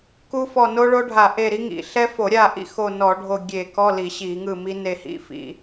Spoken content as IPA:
k u˦˥ f ɔ˦˨ n o˦˥ ɭ o˦˥ ɖʱ a˧˩˧ ʔ e˦˨ ɾ i˦˥ ŋ ḭ˧˩˧ ɬ ɛ˦˥ f o˧˩˧ ɾʲ a˦˨ ʔ ḭ˦˥ x o˦˨ n ɔ˧˩˧ ɖʱ o˦˨ ɡʲ e˧˩˧ k ɔ˧˥˧ l i˧˩˧ ɕ i˧˩˧ ŋ ɯ˦˨ m i˦˥ n e˦˨ h ḭ˧˥˧ f ḭ˧˩˧

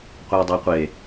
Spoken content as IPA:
qʷ e dˤ e qʷ e

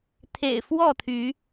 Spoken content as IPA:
t̪ʰ ḛ˨˩ ɪ̯ f w ɔ˥˨ t̪ʰ y˨˦

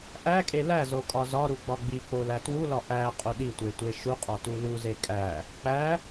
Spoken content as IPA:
ʔ æ kʼ e l æ z o kʼ ɒ z ɒ ɾ u ɡ͡b ɒ ɡ͡b i k͡p o l æ t w u l ɒ ʔ æ qʼ u ɗ i tʷ e tʷ e ʃ u qʼ ɒ t u l u z e kʼ æ | k͡p æ

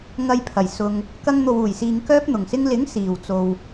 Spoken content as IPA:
ŋ ɐ˧ j pʰ ɐ˨˩ j s ʊ˧ ŋ | k ɐ˧ ŋ n̪ o˨ w uː˨˩ j s iː˨ ŋ k œː˥ p̚ n̪ ʊ˨˩ ŋ s ɪ˥ ŋ l ɪ˨˥ ŋ s iː˨ w t͡s o˧ w

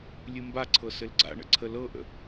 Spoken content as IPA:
lʲ ɨ m b a ǀʰ ɤ s ɘ l ɡ͡ǀ a̰ ɳ ə̰ ǀʰ ə l ɤ ʔ ə̰

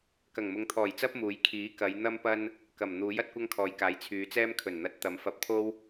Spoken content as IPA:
k ɐ˨˩ ŋ m ʊ˨˧ ŋ t̪ʰ ɔː˨˩ j t͡s ɐ˥ p̚ m uː˨˥ j kʰ iː˨˥ k ɐ˨˧ j n̪ ɐ˥ m p ɐ˥ n | k ɐ˨˩ m n̪ uː˨˥ j ɐ˥ t̚ kʷ ɐ˥ ŋ kʰ ɔː˨˧ j k aː˨˥ j t͡sʰ yː˨˧ t͡s ɛː˥ m kʰ ɵ˨˩ n n̪ ɐ˨˥ t̚ t̪ ɐ˨˧ m f ɐ˧ p̚ t̪ʰ o˥ w

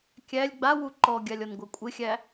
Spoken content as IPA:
kʲ æ lʲ ɡ͡b a w u ǃ ɔ ɡʲ a lʲ ɔ n ɡʷ a kʷʼ ɪ xʲ æ

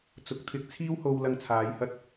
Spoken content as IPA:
t͡s ʊ˨˥ k̚ t̪ʰ ɪ˧ k̚ t͡sʰ iː˥ w h o˧ w l ɐ˧ ŋ t͡sʰ aː˨˧ j h ɐ˥ t̚

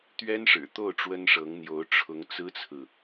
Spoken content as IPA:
t̪ ɥ ɛ˥ n ʂ ɻ̩˨˩ t̪ o˥˩ ʊ̯ ʈ͡ʂ w ə˥ n ʂ ɤ˧˥ ŋ n̪ j o˧˥ ʊ̯ ʈ͡ʂʰ ʊ˧˥ ŋ t͡s ɹ̩˥ t͡sʰ ɹ̩˨

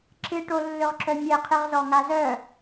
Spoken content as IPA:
ǁ ɪ ʈ o lː ʏ ʁ ǁ œ mʲ ɛ qʰ ɪ ʁ z ɔ ŋ a z œ

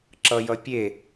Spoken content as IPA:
ǁ ʌ j ʌ pʲ e

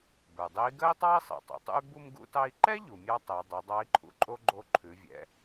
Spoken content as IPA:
b ə˞˩ dˤ e˧˥ i̯ ɡ ɜ˥ i̯ tˤ ɑ˥ i̯ sˤ ɛ̰˩ tˤ ṵ˩ tˤ ṵ˥ y̯ b u˧ m ɡ ṵ˧ t ɑ˧ i̯ ǃ ɛ˥ ʎ u˩ mʲ ɑ˥ tˤ ɛ˩˧ dˤ o˩˧ dˤ ɑ˧˥ i̯ ǃʰ ṵ˩˧ ǃʼ o˥ ɡ͡ǃ o˧˥ ǃʰ ʉ˩˧ vʲ ɛ̰˩˧

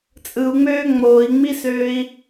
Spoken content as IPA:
t͡sʼ ɯ u̯ ŋ͡m øː ŋ͡m oː i̯ ŋ͡m i s øː i̯

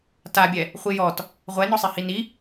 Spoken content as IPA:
t a bʲ ɛ | χʷ i j ɔ t | ʁʷ ɛ n ɔ sˤ i h i n i

